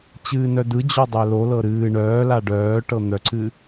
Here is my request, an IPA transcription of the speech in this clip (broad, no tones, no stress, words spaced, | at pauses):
t͡ɕɨːnœdɯ d͡ʑɔdˤœlo lɤɾɨː ɳœːla ɖœː ʈɤn̪œǀɨ